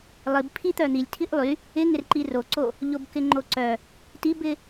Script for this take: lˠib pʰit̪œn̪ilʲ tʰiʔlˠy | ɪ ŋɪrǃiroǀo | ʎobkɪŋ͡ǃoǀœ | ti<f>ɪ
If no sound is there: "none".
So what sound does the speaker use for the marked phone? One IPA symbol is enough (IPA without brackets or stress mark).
b